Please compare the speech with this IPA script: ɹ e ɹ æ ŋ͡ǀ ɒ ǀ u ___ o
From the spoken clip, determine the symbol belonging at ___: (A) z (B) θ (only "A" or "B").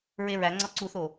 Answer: B